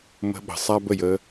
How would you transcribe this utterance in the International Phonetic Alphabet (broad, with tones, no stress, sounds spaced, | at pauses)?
m ə̤˧ ɓ ə̤˨ sˤ a˧ b ə˨ j ə˧